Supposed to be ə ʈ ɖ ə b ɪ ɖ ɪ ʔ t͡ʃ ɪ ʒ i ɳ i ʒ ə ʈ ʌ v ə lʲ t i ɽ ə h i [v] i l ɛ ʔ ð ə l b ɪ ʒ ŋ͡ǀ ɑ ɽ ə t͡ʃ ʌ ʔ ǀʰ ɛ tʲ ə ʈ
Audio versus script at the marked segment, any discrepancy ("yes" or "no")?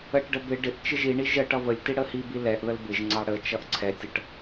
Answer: yes